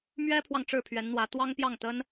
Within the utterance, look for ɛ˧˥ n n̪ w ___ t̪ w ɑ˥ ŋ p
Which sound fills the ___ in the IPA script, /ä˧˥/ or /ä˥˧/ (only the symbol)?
ä˧˥